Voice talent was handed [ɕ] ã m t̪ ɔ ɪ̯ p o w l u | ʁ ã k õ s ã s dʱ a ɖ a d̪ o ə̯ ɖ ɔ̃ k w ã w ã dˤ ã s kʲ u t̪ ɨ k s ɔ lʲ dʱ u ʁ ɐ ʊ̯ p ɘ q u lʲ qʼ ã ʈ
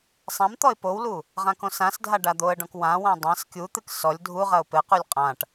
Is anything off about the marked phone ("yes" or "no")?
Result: yes